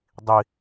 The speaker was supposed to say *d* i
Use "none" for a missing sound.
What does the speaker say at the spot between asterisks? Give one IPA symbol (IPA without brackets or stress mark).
dˤ